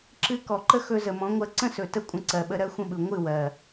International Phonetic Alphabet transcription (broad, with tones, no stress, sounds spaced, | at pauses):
ǁ ɨ˧ k ɔ˨ ǃ ə˦ x ɵ˧ z ə˨ m ɔ̃˨˦ ŋʷ ɜ˧ ǀ ə̃˦ s ɵ˨ t ə˦ kʷʼ ə̃˧ ǀ ɜ˨ ɓ ə˧ ɾ ɜ˦ xʷ ə̃˦ ɓ ɯ˨ ŋʷ ɨ˦˨ w ɜ˨